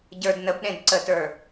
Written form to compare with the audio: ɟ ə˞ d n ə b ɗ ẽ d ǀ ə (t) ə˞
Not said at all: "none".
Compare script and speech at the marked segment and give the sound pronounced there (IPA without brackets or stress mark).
t